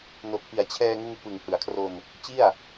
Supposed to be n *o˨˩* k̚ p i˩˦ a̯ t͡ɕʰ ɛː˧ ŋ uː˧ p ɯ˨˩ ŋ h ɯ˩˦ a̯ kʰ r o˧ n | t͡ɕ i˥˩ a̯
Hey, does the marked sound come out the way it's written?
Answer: yes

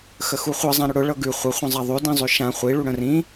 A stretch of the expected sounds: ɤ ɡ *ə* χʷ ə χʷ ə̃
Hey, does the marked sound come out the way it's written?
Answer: no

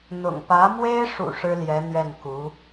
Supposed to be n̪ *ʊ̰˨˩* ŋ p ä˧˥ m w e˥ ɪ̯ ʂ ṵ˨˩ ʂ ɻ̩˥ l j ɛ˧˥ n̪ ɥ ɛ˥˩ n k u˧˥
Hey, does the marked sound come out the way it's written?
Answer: yes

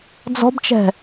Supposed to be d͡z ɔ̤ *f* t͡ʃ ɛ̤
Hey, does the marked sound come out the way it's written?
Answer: no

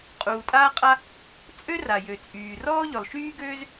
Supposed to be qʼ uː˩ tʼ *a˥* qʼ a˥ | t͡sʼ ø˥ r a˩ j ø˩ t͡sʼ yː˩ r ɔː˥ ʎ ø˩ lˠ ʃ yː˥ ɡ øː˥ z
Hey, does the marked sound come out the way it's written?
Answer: no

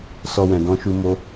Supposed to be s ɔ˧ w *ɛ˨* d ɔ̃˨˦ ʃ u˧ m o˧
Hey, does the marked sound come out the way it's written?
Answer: no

